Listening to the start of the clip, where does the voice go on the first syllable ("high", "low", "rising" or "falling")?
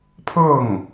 falling